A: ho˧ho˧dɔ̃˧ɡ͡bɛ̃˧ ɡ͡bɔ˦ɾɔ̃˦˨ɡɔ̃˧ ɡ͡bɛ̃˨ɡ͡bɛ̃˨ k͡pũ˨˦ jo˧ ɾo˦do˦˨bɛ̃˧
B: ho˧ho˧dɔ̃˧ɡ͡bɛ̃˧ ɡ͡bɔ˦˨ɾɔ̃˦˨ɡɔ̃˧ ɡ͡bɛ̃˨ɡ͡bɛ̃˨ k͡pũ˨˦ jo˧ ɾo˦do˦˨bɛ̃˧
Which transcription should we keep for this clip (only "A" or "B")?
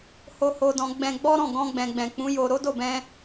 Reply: A